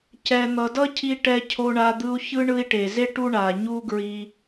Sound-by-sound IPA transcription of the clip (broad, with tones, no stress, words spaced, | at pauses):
cɛ˩n̪ʌ˩ dʌ˥cʰi˧ ʈɛ˧cʰo˧ɳa˧ d̪ɯ˧u̯çɯ˥ ɳɯ˧i̯ʈe˩ze˥ ʈu˥ ɳa˩ ɲu˥ɡɹi˧